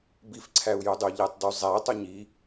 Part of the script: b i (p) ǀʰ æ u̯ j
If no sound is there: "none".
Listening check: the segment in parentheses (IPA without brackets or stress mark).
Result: f